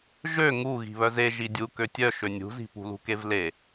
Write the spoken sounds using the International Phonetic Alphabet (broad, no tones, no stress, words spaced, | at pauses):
ʒø ŋuɣi̤ βœze ʒidʲu køtʲœ ʃønʲṳzi̤ pṳlṳkevle